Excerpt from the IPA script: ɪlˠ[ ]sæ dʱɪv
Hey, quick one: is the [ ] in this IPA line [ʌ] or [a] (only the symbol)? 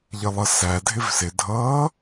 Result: ʌ